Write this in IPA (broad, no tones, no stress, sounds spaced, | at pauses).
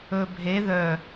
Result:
ɵ bʱ e ð œ